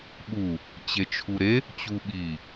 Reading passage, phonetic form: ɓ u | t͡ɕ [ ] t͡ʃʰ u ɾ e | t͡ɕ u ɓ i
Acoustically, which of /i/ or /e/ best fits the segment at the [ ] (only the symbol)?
e